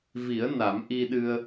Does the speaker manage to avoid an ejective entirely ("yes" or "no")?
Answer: yes